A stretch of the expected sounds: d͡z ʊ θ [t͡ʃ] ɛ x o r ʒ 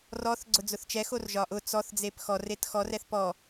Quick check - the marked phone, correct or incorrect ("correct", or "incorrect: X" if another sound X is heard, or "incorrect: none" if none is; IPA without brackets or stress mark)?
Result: correct